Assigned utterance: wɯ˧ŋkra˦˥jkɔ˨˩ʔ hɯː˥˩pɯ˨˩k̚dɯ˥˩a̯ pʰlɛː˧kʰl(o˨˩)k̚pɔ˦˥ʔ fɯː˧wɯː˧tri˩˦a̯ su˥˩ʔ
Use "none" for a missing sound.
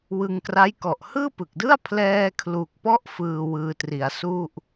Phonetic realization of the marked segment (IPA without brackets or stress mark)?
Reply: u˨˩